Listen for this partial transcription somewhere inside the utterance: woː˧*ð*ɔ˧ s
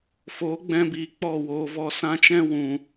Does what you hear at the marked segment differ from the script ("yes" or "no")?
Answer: yes